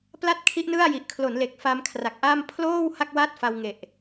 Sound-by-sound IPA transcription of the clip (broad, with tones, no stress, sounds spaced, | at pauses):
p l a˥˩ t̚ kʰ i˦˥ ʔ n ɯ˥˩ a̯ j i˨˩ ʔ kʰ l o˩˦ n l e˨˩ k̚ f a˧ m kʰ r a˨˩ k̚ ʔ a˥˩ m pʰ l oː˥˩ w h a˥˩ k̚ w a˥˩ t̚ f a˧ w ŋ e˨˩ ʔ